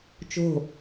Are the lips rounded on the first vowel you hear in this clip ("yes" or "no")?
yes